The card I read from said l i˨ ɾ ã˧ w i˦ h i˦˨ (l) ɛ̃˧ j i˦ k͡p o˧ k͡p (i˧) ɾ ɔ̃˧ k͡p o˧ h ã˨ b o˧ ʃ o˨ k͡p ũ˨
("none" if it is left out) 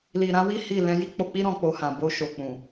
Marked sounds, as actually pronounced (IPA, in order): l, i˦

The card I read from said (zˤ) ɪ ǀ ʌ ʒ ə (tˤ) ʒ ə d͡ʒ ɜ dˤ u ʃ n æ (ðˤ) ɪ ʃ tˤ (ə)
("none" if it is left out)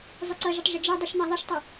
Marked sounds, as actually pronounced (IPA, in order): zˤ, tˤ, ðˤ, ʌ

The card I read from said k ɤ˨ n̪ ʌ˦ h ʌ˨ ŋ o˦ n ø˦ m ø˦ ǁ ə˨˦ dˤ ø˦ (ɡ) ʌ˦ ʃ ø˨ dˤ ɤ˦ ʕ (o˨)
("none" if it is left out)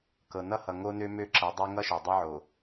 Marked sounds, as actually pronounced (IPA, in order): ŋ, o˨

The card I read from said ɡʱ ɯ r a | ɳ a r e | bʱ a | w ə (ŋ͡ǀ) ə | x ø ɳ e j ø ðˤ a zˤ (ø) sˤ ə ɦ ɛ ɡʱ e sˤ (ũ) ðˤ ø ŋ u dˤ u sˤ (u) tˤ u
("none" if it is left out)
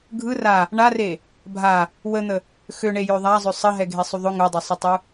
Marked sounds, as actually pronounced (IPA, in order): n̪, ø, u, ø

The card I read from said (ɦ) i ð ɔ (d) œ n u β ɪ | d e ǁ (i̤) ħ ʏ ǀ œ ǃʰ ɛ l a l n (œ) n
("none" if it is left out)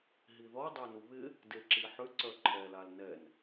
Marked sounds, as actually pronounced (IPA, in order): ɦ, dˤ, i, ɛ

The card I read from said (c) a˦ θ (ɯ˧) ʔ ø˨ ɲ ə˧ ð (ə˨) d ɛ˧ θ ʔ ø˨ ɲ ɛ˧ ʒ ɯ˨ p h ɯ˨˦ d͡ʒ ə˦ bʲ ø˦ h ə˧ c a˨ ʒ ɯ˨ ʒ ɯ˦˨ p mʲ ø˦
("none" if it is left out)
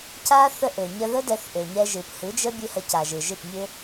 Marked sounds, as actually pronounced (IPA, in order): c, ə˧, ə˦

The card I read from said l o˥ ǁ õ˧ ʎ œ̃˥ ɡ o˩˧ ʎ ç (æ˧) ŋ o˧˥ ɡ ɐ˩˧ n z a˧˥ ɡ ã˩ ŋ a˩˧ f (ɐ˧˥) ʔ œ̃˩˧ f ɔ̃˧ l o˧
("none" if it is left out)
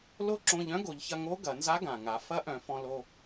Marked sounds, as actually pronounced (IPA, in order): ɐ˧, ɐ˧˥

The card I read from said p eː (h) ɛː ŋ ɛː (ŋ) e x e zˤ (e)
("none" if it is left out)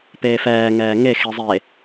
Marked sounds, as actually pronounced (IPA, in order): f, ŋ, e

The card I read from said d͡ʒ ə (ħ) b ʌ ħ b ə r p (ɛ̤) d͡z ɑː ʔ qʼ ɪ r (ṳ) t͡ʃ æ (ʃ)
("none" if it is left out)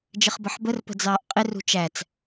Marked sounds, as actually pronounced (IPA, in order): χ, ə̤, ṳ, t͡s

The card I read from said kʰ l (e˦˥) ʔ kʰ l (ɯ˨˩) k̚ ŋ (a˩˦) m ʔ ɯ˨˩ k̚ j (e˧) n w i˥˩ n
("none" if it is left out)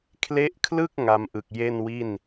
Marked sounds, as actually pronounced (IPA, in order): e˦˥, ɯ˥˩, a˧, e˥˩

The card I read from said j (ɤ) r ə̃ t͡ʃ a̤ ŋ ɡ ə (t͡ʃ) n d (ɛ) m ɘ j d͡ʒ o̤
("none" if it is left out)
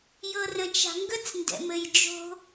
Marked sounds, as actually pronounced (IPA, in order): ɤ, t͡s, ɛ̰

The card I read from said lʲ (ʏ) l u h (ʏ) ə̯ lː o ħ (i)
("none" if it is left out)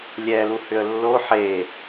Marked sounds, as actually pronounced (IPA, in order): ɛ, ʏ, e

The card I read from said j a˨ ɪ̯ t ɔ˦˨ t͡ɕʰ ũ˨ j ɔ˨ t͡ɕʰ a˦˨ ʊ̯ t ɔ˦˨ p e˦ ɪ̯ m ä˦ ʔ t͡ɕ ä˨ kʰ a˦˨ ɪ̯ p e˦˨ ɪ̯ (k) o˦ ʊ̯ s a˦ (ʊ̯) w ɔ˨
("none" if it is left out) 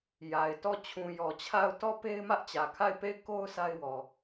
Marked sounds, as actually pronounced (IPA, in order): k, ɪ̯

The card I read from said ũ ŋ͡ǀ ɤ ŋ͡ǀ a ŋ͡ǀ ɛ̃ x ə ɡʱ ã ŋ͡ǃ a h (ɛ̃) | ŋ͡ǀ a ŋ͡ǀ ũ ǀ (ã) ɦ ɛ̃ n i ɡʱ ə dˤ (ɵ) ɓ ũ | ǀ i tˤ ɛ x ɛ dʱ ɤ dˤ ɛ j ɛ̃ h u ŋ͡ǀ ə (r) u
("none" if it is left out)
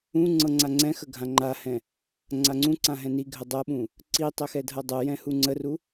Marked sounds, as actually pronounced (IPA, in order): ɛ̃, ã, ɤ, r

